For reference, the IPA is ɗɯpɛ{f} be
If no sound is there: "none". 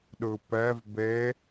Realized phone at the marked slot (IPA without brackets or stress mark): v